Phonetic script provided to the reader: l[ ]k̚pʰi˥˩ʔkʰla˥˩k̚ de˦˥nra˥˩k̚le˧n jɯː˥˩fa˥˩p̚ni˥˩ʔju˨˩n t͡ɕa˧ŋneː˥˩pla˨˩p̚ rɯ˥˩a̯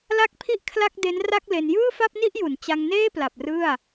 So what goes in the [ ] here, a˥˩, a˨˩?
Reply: a˥˩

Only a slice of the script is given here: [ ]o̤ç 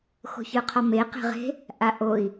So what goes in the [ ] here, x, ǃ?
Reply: x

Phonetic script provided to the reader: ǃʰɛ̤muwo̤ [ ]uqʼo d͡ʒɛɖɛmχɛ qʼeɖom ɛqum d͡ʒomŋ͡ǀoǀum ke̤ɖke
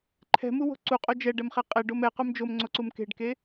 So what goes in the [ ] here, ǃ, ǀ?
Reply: ǀ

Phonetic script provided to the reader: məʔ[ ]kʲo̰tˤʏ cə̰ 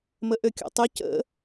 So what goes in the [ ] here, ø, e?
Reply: ø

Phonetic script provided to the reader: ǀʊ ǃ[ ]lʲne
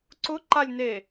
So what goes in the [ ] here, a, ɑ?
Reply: a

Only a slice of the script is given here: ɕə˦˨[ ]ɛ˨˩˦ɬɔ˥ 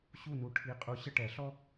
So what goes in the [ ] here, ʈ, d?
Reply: ʈ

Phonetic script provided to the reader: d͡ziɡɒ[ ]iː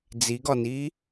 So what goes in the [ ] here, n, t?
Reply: n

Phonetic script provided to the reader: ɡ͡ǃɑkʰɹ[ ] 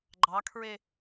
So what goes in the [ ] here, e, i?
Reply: e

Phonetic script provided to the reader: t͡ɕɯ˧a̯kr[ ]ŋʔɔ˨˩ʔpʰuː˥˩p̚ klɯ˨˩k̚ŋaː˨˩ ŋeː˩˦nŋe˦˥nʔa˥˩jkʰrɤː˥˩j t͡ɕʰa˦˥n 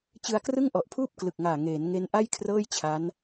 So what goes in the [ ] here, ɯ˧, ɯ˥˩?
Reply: ɯ˥˩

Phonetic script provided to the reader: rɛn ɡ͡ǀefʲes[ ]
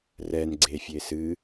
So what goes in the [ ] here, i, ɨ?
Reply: ɨ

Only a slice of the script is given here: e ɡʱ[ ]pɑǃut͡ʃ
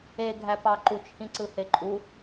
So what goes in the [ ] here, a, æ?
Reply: æ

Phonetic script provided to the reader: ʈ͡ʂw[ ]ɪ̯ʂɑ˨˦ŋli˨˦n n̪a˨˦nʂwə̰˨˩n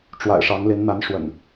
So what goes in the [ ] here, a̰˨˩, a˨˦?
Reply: a̰˨˩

